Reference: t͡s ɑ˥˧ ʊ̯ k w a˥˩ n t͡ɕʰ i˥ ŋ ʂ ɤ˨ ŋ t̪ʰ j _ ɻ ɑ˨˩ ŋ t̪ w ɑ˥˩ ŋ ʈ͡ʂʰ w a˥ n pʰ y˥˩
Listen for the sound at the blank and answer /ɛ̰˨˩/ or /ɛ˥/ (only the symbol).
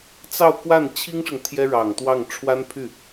ɛ˥